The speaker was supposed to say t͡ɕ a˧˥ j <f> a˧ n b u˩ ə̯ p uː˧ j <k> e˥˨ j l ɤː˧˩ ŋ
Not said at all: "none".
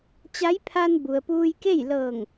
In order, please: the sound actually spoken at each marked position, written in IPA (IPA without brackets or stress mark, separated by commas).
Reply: pʰ, k